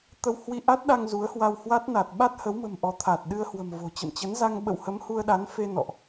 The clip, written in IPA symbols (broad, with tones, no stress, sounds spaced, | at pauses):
t̪ ə˧ w h w i˧ ʔ a˦˥ t̚ ɗ a˧ ŋ z u˨˦ ə̯ h w a˧ w h w a˦˥ t̚ n a˨˩ t̚ ɓ a˦˥ t̚ h ə˨˦ w m ə̤˨˩ m ʔ ɔ˨˦ t̪ʰ a˨˩ t̚ ɗ ɨ˧ ə̯ h w ə̤˨˩ m v o̤˨˩ t͡ɕ ə̰˧˨ m t͡ɕ ə˨˦ n z a˧ ŋ ɓ ə̰˧˨ w h ə˨˦ m h u˧ ə̯ ɗ a˨˦ n f e˧ n ɔ̰˧˨ ʔ